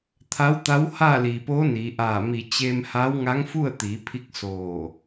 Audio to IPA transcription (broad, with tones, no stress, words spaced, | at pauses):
t̪ʰa˧˥wt̪a˧˥w haː˥˨liː˩poː˧˥ niː˩˧ʔaː˧˩mi˧˩ t͡ɕe˧mha˧˥w ŋa˧˥ŋfu˥˨ə̯ t̪iː˩˧pʰi˧k̚ soː˧˩